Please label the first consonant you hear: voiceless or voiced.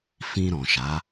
voiceless